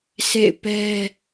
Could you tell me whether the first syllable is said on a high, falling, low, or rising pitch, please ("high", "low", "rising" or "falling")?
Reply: falling